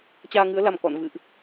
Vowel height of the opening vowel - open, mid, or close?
open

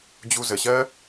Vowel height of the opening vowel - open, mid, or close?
close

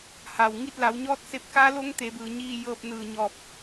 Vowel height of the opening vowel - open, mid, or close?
open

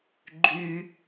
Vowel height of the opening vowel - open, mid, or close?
close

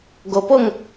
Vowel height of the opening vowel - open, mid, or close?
mid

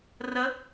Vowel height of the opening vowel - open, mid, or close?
mid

